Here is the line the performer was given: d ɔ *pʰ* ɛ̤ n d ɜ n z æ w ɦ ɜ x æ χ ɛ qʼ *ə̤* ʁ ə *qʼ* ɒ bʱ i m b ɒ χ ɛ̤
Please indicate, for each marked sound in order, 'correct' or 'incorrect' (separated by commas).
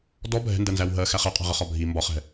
incorrect, incorrect, incorrect